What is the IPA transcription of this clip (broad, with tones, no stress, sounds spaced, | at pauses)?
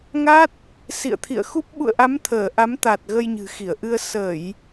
ŋ a˦˥ t̚ | s ḭ˧˨ ə̯ t̪ʰ ḭ˧˨ ə̯ x u˦˥ p̚ ɓ ṵ˧˨ ə̯ ʔ a˨˦ m t̪ʰ əː˧˩ ʔ a˨˦ m t̪ a˨˩ t̚ ɣ ə˧ j ɲ ɨ̤˨˩ x i˧˩ ə̯ ʔ ɨ˧ ə̯ s ə˧˩˨ j